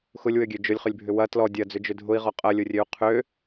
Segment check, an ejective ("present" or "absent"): present